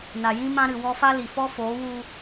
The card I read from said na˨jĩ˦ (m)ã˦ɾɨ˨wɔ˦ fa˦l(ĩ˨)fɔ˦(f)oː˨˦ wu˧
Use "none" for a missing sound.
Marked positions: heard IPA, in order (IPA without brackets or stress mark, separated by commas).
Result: m, i˨, f